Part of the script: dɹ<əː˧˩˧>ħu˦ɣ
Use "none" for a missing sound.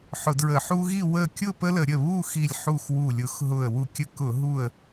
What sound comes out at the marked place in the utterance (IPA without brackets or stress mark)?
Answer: ə˧˩˧